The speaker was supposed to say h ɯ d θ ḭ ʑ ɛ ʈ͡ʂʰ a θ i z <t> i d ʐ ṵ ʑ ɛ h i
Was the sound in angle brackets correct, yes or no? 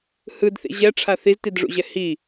yes